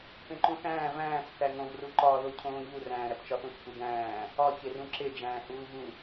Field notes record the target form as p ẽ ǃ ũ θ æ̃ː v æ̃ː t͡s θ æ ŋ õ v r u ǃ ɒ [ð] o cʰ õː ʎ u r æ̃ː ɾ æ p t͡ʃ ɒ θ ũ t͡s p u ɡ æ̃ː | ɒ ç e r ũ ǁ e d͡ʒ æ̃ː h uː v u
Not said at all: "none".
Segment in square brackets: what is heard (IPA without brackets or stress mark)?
ð